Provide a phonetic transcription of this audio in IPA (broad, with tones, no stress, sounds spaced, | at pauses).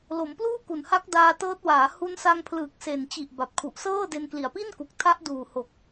l o˩˦ m p l uː˥˩ k u˨˩ n h a˦˥ k̚ d aː˧ t ɤː˦˥ t̚ w aː˩˦ h u˧ n s a˧ ŋ pʰ l ɯː˨˩ k̚ s e˨˩ n t͡ɕ i˨˩ ʔ b a˨˩ p̚ kʰ u˨˩ ʔ s ɤː˥˩ d e˧ n k l i˨˩ a̯ p i˥˩ n k u˨˩ k̚ tʰ a˦˥ ʔ d uː˨˩ h o˨˩ k̚